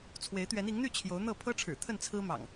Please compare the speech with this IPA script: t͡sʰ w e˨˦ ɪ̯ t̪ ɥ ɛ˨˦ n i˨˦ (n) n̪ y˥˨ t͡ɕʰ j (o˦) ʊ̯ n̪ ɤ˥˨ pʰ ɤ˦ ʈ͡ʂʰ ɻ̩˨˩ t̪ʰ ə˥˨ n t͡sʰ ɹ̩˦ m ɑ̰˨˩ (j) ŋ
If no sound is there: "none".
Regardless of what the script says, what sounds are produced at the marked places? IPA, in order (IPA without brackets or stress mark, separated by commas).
ŋ, o˨˦, none